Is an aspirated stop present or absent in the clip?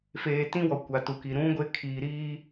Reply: present